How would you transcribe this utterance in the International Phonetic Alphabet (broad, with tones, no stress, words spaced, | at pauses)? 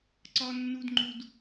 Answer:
ǀɒ˦nːu˦dŋ͡ǃu˦d